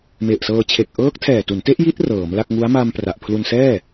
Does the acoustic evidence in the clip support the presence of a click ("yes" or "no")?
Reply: no